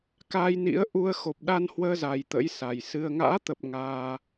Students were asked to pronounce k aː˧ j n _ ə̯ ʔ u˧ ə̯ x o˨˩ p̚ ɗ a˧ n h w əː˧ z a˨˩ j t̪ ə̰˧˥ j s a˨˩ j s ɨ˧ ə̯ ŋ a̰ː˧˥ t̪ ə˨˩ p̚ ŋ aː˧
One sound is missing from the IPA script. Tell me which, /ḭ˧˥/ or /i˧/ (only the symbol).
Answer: ḭ˧˥